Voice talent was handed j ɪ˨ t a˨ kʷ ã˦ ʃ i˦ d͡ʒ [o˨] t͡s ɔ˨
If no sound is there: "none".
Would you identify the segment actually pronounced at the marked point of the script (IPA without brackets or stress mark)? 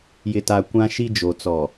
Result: o˨